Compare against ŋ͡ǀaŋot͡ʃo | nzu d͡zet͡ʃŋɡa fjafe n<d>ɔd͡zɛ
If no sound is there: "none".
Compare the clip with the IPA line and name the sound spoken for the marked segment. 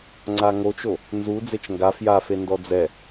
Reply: d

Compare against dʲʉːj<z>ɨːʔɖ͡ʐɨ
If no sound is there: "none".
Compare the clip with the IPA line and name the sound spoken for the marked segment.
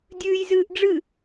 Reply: z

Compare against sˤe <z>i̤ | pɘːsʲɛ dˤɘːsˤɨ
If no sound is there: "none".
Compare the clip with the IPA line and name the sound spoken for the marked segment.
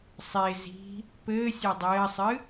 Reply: z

